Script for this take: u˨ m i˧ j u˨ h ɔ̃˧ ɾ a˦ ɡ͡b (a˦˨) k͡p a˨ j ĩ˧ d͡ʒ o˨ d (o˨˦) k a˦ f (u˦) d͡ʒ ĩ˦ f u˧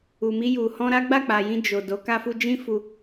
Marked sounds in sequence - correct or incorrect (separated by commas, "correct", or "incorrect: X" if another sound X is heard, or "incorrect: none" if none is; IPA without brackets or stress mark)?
correct, correct, correct